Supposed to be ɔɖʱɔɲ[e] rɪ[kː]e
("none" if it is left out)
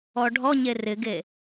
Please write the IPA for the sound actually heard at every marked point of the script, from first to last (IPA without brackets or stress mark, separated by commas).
e, ɡ